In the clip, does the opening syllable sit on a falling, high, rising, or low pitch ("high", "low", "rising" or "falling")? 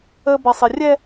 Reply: low